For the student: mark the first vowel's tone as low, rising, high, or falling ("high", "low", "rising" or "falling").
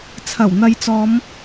low